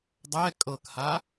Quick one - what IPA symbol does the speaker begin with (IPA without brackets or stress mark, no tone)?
dˤ